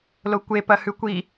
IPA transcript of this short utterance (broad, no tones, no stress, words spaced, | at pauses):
lokʷe pɐhʉkʷi